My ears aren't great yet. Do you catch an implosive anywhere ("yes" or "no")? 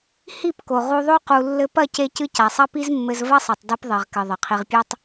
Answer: no